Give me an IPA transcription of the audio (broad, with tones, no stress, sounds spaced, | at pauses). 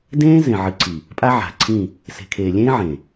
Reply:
d ẽː˦ z ẽ˨ ʕ ɨ˨ ǀʰ i˨ | pʼ a˦ ʕ a̤˨ ǀʰ ĩ˦˨ | s e̤˨ kʰ eː˨ lʲ ẽː˦ ʕ ẽ˨